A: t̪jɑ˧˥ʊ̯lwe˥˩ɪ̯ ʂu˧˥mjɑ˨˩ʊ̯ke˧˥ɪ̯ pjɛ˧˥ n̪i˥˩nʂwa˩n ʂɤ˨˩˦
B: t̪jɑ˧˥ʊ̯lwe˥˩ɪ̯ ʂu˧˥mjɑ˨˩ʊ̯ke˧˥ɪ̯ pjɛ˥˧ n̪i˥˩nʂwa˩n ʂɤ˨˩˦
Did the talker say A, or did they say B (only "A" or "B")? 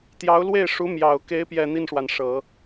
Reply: B